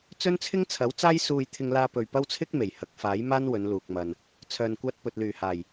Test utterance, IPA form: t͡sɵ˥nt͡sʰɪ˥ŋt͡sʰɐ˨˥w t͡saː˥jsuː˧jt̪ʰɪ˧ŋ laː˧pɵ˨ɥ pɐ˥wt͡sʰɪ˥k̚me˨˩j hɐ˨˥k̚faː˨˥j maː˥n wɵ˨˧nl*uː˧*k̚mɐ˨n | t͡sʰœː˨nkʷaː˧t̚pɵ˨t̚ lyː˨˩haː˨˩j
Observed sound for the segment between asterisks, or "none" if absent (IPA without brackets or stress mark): uː˨